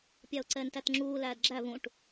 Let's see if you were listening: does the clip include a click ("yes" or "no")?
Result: yes